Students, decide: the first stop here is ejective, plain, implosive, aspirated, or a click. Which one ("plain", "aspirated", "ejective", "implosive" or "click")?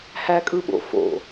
ejective